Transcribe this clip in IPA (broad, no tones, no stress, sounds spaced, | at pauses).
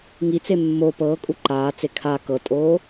ŋ i t͡s e mː o p ɤː kʼ u ǃ aː t͡s e kʰ a k ɤ tʼ oː